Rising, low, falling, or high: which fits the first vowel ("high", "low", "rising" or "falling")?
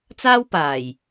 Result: high